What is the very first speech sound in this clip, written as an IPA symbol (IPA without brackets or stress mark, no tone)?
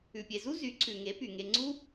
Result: ʉ